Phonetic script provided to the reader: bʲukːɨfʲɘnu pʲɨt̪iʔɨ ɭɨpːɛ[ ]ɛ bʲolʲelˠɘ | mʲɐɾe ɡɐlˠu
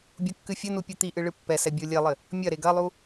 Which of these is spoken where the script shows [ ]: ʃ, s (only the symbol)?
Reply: s